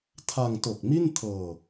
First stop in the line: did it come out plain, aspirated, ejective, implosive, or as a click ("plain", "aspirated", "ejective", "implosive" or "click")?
aspirated